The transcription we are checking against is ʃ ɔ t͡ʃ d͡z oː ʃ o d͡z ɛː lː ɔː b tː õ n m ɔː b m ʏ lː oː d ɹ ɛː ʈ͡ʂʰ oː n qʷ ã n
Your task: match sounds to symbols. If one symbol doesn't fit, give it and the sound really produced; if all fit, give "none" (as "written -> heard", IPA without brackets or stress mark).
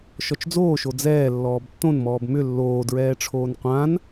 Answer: none